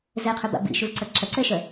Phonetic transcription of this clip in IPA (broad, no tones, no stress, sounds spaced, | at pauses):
z ɛ qʰ ø b a̰ b ḭ ʃ u z ǀ ɐ ǁ ɐ ǀ ɛ ʃ œ